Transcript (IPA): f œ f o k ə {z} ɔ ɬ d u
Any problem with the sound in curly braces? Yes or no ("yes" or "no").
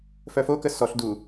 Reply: yes